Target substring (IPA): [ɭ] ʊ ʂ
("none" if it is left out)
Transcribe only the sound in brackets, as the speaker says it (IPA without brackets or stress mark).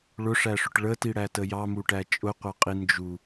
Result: ɭ